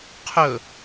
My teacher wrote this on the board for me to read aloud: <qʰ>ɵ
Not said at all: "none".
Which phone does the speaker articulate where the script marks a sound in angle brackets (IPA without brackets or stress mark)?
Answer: qʰ